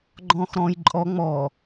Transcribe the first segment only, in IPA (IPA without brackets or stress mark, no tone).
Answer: ɡ͡ǃ